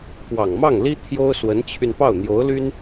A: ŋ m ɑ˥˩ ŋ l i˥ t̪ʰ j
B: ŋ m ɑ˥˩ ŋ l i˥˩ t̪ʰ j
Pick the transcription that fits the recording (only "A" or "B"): A